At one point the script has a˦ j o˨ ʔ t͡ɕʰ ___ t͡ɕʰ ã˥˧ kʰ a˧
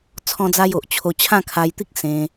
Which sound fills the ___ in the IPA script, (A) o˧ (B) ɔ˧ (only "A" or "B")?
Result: A